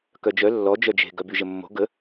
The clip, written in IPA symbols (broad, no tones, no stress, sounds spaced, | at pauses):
k œ d͡ʒ œ lː ɔ d͡ʒ œ d͡ʒ e̤ ɡ œ b y ʒ ə mː o̤ ɡ ə